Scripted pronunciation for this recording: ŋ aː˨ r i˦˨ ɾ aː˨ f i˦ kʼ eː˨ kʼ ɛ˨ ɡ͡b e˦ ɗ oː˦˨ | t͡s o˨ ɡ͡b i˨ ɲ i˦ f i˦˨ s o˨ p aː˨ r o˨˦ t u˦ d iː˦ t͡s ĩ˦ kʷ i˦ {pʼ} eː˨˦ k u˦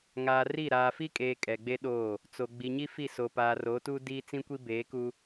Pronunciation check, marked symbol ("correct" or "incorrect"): incorrect